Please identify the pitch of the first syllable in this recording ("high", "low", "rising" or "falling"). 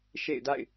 falling